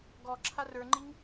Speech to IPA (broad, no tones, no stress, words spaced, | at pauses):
ɡɔ ǁʰarə˞ŋ͡ǃiŋ